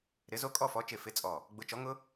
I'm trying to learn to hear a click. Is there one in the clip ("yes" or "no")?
no